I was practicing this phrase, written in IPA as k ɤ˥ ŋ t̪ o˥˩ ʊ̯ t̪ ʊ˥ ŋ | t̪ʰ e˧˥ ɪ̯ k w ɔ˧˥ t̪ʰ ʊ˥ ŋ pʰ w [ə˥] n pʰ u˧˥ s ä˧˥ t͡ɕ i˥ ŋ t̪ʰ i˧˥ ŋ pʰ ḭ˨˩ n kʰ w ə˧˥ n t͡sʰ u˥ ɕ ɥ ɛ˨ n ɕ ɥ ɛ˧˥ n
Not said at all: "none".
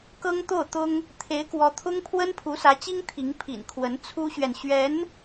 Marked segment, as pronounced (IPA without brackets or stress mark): ə˥